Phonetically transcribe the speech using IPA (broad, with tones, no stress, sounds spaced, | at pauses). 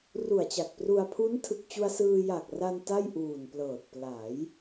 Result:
r u˨˩ a̯ t͡ɕ a˨˩ k̚ p r u˧ a̯ pʰ u˦˥ n tʰ ɯ˨˩ k̚ t͡ɕ u˧ a̯ s ɯː˧ j a˨˩ k̚ r a˧ n t a˥˩ j ʔ uː˨˩ n p l ɤː˨˩ t̚ p l a˩˦ j